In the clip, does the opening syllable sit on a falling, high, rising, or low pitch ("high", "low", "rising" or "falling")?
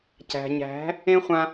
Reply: low